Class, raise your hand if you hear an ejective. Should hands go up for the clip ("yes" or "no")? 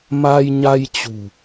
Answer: no